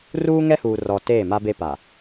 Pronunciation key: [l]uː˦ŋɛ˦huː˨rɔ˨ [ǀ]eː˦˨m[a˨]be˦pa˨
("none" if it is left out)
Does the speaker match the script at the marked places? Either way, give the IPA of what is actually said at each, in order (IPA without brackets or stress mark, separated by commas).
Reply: r, t, a˦